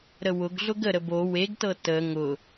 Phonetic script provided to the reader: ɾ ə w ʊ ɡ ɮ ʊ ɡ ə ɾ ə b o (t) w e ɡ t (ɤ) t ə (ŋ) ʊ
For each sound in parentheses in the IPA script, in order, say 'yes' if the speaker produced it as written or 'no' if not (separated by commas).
no, yes, yes